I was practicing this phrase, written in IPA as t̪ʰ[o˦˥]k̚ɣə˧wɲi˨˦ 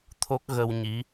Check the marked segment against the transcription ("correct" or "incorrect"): correct